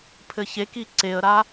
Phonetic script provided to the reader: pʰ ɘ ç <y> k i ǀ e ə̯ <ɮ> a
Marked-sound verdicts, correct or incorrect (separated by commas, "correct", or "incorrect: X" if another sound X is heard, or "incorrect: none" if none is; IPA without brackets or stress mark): incorrect: e, incorrect: ɾ